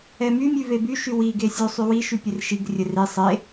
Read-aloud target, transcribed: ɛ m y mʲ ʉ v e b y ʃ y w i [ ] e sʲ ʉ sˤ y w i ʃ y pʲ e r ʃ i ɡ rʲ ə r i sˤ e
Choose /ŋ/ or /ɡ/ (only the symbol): ɡ